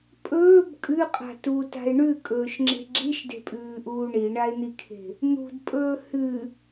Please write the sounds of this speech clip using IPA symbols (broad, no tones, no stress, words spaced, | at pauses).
pʼɵːb kʼʉqʼa̤ tuta̤e̯ ɳʉkʼɵːʃŋ͡ǁe̤ ɡ͡ǁiʃde̤pʼʉːʔuː ɳiɳae̯n̪ikʰe̤ | n̪ṳdpʼɵː hʉ